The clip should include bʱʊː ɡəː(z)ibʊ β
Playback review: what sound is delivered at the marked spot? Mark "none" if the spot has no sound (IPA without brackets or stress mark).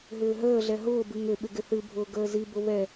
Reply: z